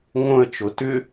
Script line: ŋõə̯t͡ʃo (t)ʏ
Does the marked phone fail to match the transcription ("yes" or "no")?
no